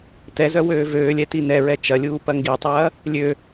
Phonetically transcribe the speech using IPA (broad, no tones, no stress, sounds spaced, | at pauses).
t ɛ z œ w øː v øː lʲ ɛ t i n ɛ ɹ ɛ t͡ʃ ɐ lʲ uː p ɐ ŋ ɡ i tˤ ɐː | lʲ ø